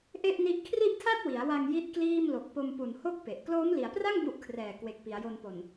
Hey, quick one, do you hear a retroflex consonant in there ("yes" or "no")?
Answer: no